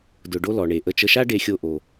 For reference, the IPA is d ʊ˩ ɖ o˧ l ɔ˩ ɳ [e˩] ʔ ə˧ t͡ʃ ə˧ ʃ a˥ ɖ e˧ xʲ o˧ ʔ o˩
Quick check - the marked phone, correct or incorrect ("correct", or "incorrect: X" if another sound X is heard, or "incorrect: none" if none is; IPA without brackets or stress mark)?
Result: correct